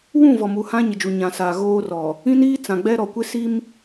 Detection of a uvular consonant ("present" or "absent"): absent